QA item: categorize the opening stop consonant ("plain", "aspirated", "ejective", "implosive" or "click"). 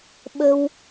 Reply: implosive